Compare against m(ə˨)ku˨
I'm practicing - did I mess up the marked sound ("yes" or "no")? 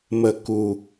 no